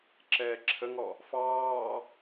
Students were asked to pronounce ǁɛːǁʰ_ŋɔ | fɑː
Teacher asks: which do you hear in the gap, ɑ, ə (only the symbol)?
ə